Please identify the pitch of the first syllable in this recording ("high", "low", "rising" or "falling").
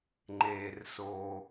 low